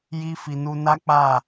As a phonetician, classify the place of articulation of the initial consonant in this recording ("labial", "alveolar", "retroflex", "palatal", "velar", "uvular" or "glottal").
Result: palatal